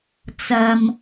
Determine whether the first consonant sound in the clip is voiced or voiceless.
voiceless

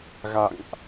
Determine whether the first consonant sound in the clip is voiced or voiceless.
voiced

